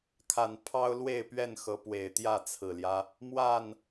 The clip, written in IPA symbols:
kʰ a˨˩ n pʰ ɑ˦ ʊ̯ l w e˥˨ ɪ̯ p ɥ ɛ˥˨ n x ɤ˨˦ p w e˨˩ ɪ̯ t̪ j ä˥˨ t͡sʰ ɹ̩˨˩ l j ä˦ | m w a˥˨ n

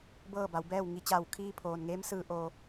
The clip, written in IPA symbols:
b ɤː˥˨ b a˩˧ w b ɛː˥˨ w ŋ i˩˧ t͡ɕ aː˧˩ w kʰ iː˧ pʰ oː˩ n ŋ eː˧˥ m s ɯː˧˩ ʔ oː˩

